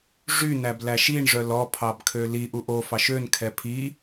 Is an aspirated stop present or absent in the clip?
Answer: present